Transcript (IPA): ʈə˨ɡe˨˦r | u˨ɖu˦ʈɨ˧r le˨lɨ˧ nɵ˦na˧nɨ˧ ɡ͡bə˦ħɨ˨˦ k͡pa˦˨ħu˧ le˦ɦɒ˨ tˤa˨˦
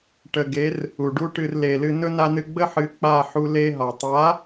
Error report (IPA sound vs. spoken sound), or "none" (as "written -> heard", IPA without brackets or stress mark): none